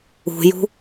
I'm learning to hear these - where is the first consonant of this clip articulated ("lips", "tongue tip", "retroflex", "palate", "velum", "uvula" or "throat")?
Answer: palate